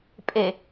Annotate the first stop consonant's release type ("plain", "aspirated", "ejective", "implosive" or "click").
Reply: ejective